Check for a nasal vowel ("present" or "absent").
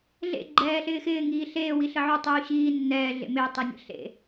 absent